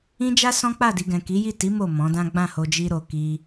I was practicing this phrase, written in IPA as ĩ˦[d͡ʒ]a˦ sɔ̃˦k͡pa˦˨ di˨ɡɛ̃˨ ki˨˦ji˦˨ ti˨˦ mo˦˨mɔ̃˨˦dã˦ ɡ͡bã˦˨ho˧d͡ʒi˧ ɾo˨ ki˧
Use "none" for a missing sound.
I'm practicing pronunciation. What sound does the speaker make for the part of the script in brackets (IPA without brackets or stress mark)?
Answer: d͡ʒ